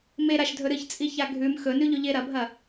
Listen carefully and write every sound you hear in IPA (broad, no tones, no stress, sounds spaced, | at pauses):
m e ɾ a ʃ dʱ ɵ ɾ ɨ ç t͡sʼ i ç a ɡʱ ʉ m x ɵ n ʉ ʎ o ʎ e ɾ ɐ bʱ ɐ